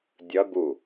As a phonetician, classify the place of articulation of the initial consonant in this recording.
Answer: alveolar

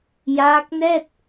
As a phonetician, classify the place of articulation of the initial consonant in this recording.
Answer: palatal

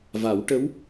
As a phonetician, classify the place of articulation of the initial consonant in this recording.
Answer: labial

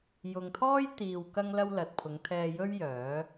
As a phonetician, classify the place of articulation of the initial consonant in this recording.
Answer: palatal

